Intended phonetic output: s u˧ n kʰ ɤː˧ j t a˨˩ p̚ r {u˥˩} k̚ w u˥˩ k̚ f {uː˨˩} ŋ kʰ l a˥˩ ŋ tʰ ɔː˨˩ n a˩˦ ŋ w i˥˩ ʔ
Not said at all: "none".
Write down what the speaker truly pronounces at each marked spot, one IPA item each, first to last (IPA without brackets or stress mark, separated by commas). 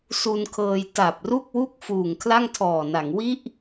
u˥˩, uː˨˩